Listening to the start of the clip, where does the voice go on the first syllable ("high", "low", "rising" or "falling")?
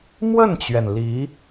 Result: falling